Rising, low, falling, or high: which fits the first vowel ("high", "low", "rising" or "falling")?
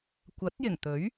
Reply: rising